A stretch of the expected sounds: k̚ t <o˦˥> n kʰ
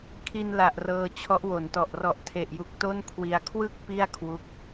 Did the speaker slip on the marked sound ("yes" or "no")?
yes